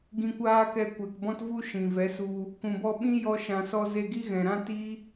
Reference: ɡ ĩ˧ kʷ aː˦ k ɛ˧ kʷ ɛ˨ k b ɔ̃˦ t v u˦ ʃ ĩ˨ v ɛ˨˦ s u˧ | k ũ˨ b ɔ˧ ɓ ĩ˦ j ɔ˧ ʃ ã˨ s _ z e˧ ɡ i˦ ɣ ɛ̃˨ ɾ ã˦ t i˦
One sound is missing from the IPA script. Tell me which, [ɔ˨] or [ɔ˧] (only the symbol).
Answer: ɔ˧